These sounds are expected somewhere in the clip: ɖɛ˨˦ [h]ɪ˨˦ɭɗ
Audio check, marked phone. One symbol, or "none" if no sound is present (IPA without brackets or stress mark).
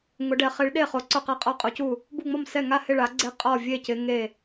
χ